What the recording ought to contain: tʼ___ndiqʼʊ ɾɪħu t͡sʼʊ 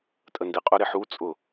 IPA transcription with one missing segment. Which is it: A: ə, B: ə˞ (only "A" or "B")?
A